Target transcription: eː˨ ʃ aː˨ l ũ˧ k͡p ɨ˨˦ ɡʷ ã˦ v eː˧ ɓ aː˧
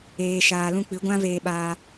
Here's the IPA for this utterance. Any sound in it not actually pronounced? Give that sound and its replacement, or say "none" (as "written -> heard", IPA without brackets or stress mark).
none